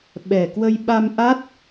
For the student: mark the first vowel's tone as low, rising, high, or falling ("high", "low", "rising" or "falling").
low